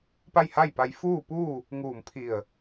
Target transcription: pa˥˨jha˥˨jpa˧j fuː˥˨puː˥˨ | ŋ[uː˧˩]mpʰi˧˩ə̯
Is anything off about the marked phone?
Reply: no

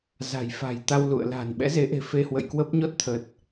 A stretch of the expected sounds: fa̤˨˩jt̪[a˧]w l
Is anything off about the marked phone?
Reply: no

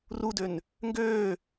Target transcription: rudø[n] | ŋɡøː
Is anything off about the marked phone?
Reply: no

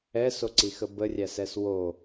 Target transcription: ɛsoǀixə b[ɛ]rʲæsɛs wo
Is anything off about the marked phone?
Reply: yes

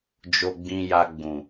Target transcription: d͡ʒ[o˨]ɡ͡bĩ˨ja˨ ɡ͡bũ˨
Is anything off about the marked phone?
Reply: no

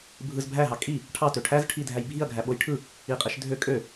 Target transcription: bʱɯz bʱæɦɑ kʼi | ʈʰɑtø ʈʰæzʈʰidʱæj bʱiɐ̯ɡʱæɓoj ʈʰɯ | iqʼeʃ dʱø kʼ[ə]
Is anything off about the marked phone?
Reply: yes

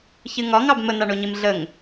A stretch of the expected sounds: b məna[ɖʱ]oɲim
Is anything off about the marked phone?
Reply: yes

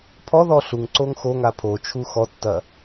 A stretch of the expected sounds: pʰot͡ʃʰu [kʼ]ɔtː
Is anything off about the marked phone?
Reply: yes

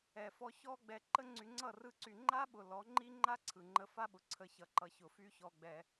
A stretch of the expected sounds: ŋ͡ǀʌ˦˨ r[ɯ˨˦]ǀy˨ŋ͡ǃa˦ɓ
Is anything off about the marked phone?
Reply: yes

